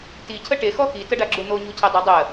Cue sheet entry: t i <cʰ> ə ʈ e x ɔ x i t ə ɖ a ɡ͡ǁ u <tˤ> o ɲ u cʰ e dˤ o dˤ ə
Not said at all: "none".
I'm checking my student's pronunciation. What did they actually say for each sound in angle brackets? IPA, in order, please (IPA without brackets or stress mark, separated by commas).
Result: cʰ, n̪